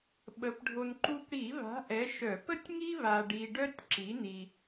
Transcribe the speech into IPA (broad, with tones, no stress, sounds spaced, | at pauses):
ɓ ə˨˥ p ɖʱ o˧ n ǃ u˧ p ɽ i˧˩˧ β a̤˨˥ ʔ ɛ˨˥ ʃ œ˧˩˧ p ə˥ tʲ ŋ i˥ β a˧ ɖ i˧ ɖ œ˥ tʲ ǁ i˨˥ n i˧